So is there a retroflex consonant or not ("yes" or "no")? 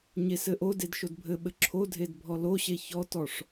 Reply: yes